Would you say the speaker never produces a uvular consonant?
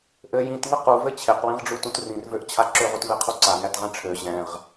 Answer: no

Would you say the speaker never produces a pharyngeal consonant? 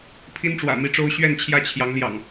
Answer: yes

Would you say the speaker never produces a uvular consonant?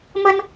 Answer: yes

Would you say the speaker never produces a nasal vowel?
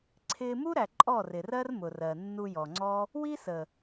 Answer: yes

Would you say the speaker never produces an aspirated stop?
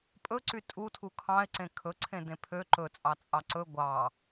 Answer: no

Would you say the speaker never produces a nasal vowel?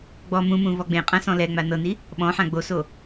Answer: no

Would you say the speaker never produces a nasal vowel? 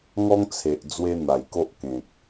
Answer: no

